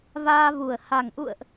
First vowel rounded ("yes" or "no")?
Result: no